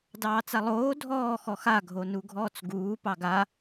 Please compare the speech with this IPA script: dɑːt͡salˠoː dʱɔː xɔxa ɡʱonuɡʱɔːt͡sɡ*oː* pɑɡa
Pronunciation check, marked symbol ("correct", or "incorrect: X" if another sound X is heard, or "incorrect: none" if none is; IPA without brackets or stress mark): incorrect: uː